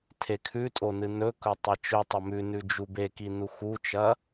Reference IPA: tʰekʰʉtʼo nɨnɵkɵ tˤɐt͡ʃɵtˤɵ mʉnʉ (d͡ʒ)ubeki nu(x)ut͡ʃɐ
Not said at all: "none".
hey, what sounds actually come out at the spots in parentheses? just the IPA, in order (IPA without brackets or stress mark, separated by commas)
d͡ʒ, x